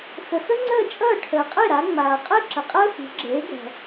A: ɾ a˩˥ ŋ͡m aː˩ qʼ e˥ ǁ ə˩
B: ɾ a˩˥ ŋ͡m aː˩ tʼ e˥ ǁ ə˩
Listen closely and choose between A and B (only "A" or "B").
A